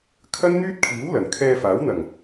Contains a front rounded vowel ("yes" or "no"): yes